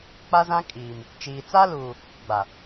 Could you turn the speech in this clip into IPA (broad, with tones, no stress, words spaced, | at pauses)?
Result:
k͡pa˦zã˦kʼiː˨m | t͡ʃiː˨ t͡sa˦luː˨ | ɡ͡ba˨